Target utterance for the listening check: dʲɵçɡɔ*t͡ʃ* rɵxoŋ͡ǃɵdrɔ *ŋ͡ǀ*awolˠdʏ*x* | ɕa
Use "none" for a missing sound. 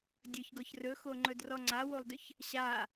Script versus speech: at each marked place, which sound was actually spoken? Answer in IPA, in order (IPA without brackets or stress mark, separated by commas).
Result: ç, ŋ͡ǀ, ç